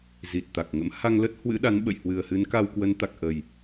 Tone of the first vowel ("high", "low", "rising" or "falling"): low